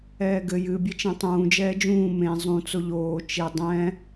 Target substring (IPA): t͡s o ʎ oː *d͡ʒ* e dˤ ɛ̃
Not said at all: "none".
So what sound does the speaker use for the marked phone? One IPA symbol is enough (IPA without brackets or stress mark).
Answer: t͡ʃ